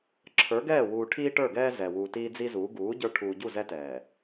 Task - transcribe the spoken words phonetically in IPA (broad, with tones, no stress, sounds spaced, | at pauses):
ǁʰ ə˞˨˦ ɡ ɛː˦˨ w uː˨ ʈʰ iː˦ ʈ ə˞˦˨ ɡ ɛː˦ z ɛ˨ w uː˨ t iː˦ d͡z i˦ z uː˨˦ ɡ uː˨˦ ɟ ə˞˦ ʈʰ uː˨ ɟ u˦˨ z ɛ˦ t ɛː˨